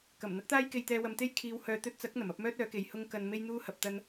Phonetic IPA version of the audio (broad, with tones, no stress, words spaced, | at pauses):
kɐ˨˩m n̪ɐ˥k̚t̪aː˥jke˧jt̪ɛː˧ wɐ˧mt̪e˥j kʰiː˨˧whœː˨ t̪ɵ˧t̚t͡sɐ˨˥k̚ n̪ɐ˨˩mɐ˨˥p̚mœː˥t̚ œː˨˥ke˨j hʊ˥ŋkɐ˧n me˥jn̪uː˥hɐ˨p̚ t̪ɐ˥n